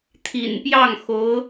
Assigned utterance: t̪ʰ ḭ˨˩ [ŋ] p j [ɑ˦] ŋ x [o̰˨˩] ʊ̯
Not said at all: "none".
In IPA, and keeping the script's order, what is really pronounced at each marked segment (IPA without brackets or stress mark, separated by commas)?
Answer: n, ɑ˥˩, o˧˥